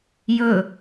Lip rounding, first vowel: rounded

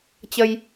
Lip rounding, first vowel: unrounded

